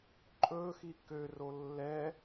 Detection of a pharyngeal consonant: absent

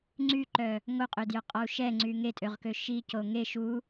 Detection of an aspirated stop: absent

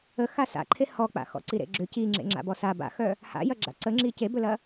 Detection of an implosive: absent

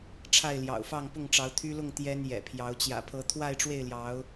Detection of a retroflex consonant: present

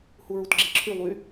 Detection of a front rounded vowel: present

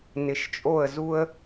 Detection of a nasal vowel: absent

